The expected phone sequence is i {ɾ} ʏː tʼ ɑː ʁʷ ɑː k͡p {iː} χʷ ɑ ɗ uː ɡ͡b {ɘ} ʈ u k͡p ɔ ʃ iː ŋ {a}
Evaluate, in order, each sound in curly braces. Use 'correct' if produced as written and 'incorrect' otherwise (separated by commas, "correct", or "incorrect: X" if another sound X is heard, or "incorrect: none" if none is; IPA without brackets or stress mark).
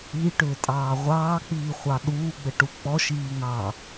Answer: incorrect: ʈ, correct, correct, incorrect: ɑ